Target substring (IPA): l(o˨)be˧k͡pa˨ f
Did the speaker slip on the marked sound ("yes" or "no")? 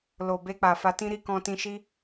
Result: no